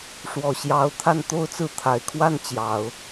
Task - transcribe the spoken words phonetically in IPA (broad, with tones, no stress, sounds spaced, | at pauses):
ʂ w ɔ˨˩ ɕ j ɑ˧˥ ʊ̯ t̪ʰ a˥˧ n t̪ o˥˧ ʊ̯ t͡s ɹ̩˥˩ t̪ʰ a˨˩ ɪ̯ kʰ w a˥˩ n t͡ɕ j ɑ˨˩˦ ʊ̯